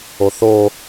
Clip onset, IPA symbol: o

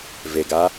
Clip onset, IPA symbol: v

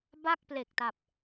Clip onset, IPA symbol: b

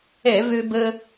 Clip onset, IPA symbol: ɛ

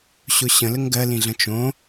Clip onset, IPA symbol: ɕ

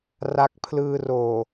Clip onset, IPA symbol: r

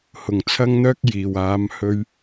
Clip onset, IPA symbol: h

